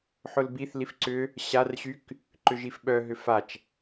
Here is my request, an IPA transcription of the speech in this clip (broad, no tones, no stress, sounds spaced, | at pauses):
ħ ʊ l b i θ l i f ǀ ʏ | ɕ a r ɕ y k | ǃ ʏ ʒ i f ɓ œ ɦ ʏ f a t͡ʃ